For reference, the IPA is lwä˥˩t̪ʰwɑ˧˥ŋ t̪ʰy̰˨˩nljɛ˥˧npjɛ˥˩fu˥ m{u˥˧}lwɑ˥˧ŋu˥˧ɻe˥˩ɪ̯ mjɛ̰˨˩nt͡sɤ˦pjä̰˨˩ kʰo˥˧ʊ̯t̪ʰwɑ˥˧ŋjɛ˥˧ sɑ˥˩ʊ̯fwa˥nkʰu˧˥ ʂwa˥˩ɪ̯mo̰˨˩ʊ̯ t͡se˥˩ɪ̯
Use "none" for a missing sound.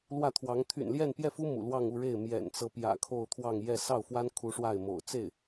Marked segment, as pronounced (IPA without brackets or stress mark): ṵ˨˩